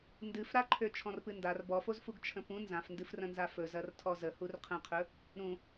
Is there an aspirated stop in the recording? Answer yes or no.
yes